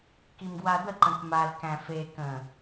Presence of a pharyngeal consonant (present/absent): absent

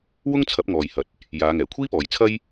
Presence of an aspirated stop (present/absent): present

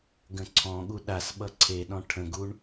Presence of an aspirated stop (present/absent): present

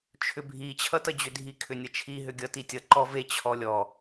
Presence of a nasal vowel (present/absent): absent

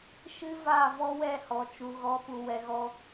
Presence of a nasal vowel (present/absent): absent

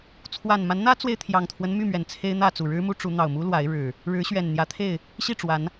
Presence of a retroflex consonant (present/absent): present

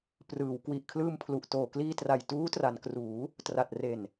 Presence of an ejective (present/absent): absent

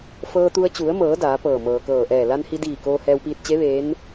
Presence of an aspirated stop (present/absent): absent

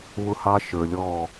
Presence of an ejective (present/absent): absent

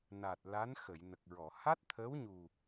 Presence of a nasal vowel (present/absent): absent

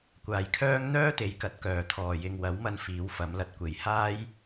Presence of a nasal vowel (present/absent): absent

